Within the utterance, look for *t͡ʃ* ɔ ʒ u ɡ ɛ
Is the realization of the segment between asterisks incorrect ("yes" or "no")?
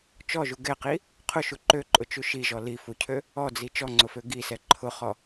no